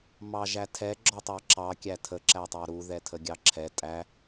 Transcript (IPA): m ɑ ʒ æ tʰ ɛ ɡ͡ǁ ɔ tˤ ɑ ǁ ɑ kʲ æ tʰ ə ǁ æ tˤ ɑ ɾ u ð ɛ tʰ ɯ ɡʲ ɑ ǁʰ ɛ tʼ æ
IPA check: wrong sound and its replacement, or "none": ɯ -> ə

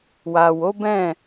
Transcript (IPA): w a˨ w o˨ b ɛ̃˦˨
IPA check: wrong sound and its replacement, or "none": o˨ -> o˨˦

